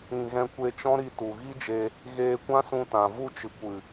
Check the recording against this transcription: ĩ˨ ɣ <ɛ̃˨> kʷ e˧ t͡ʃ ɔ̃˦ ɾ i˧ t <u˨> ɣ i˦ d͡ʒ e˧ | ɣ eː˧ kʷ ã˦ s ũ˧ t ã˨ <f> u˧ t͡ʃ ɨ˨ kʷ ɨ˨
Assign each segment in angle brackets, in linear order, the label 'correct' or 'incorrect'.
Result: incorrect, correct, incorrect

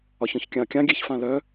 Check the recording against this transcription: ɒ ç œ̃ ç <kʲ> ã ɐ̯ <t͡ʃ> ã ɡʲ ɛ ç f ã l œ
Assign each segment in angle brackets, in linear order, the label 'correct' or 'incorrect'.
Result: correct, incorrect

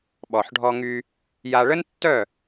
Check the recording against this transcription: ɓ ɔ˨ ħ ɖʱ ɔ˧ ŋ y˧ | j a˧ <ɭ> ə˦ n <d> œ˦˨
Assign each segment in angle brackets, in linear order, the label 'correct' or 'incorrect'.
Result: correct, incorrect

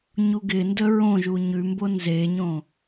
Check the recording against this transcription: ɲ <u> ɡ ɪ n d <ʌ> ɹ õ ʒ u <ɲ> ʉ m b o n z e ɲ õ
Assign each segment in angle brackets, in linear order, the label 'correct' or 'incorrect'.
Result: correct, incorrect, correct

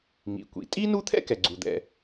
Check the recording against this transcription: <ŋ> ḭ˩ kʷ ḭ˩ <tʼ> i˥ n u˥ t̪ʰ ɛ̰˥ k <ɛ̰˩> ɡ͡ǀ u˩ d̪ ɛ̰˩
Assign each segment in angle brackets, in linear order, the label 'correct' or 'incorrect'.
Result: correct, correct, incorrect

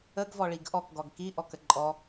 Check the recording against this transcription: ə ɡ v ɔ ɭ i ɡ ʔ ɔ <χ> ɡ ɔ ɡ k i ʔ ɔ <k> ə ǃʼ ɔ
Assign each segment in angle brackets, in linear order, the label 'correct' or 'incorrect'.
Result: incorrect, correct

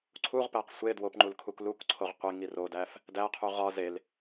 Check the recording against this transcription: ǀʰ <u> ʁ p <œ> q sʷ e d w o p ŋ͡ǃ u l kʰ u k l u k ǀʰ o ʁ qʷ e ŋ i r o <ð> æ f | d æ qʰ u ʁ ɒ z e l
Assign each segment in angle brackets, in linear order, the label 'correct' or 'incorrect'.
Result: correct, incorrect, incorrect

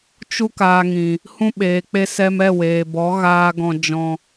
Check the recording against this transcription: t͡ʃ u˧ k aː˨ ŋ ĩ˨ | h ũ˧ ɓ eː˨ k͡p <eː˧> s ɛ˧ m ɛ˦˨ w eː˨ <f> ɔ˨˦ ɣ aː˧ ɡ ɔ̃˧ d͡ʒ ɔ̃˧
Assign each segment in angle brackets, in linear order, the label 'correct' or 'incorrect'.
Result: incorrect, incorrect

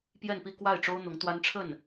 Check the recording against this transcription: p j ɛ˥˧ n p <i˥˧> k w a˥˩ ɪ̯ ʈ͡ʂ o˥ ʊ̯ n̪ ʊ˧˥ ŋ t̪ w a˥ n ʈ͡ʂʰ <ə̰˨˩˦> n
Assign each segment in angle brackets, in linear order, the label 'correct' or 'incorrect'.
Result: correct, incorrect

